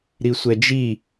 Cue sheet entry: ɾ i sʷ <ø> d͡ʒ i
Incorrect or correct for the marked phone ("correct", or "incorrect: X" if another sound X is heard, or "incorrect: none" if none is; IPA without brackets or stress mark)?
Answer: incorrect: ɛ